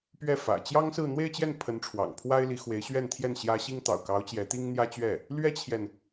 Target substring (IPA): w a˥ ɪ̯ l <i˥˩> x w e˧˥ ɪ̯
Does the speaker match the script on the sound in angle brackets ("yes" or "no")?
no